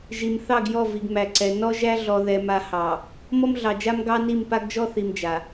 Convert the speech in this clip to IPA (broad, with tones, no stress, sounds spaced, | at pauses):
ʒ i˨ m θ ɑ˦˨ ɡ j ɔ˦˨ v i˨ ɡ m æ˨ ǀ ɛ˨ n ɔ˦ ʒ æ˦ ɮ ɔ˨ ð ɛ˨ m a˨ h ɑ˨ | m ɔ˦ m ɮ ɑ˨ d͡ʒ a˦ m ɡ ɑ˦ n i˦˨ m p a˦ ɡ d͡ʒ ɔ˦ θ i˨ m d͡ʒ a˨